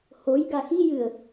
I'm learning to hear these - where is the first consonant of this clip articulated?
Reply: throat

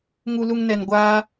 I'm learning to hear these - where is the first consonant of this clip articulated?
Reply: velum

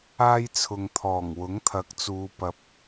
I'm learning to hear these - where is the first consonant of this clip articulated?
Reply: palate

